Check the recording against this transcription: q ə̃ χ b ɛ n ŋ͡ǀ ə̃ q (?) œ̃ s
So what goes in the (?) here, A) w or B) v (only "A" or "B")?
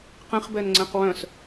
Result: A